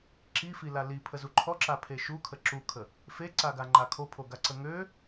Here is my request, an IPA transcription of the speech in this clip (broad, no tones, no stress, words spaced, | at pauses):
ǁifila lipʰəzu ǃʰɔǁapʰe ʃukʰə ǁukʰə | feǀaɡaŋ͡ǃa kʰopʰoɡaǀə ŋø